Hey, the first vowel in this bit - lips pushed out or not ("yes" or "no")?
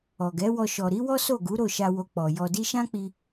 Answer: yes